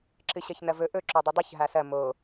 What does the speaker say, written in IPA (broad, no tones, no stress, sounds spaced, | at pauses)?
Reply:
ǁ ɨ ɕ ɐ ç n ɐ v ɵ ʔ ɵ ǁ o dˤ u dˤ u ç ɦ a s ɐ m o